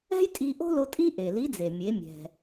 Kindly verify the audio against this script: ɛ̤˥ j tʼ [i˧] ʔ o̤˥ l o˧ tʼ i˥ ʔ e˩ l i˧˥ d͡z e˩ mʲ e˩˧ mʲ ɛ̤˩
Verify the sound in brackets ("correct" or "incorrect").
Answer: correct